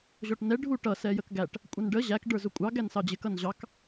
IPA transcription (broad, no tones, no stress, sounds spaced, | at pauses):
ʑ ɔ ʈ n ɛ ɖʱ u ʈ ʌ s ɛ j ə k ɡ æ ʈ | kʷʼ ʌ n ɖ ə ʑ æ k ɖ ə˞ z ʊ kʷʼ ɑ ɡ æ n s ɑ d͡ʑ ɪ k ʌ n ʑ ɑ k